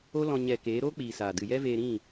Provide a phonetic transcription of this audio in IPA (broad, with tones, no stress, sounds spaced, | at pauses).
o˦ l ɔ̃˧ ɲ ɛ˨ k eː˨˦ ɾ oː˦ k͡p iː˨ s aː˨ d ɨ˨ j ɛ˦ v eː˧ ɾ ĩ˦˨